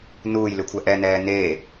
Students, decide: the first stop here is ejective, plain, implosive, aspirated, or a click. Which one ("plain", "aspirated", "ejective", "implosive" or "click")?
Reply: aspirated